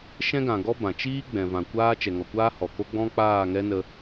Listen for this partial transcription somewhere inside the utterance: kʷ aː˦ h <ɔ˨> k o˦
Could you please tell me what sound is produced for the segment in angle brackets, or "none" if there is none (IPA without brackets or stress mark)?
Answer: ɔ˨